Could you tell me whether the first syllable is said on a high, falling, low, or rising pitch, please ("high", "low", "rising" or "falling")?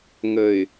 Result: low